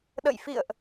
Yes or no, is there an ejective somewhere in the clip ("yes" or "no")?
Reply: no